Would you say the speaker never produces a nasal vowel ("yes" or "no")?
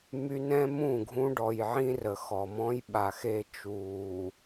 no